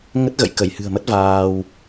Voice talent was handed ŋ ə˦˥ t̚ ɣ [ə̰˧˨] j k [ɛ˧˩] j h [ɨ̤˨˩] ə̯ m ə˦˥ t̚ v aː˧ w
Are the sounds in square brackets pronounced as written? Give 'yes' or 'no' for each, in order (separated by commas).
yes, no, yes